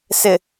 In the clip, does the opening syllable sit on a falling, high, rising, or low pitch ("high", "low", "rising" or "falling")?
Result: low